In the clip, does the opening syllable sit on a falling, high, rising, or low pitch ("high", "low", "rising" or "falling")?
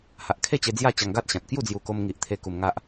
low